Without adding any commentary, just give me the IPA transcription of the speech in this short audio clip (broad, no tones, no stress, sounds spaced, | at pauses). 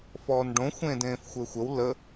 f ɔː n ɖ õ xʷ ẽː d ẽː f xʷ ɘː xʷ ə w l ə